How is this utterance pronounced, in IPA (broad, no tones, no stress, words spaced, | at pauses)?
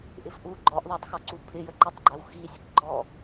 ʔɪfʔu ɡ͡ǃɔʔðˤɛtˤxɔǀu pʰɪjəǃɜtˤɡ͡ǃæw xisʲəkɡ͡ǃɔ